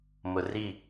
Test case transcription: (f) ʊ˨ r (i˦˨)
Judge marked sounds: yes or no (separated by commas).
no, yes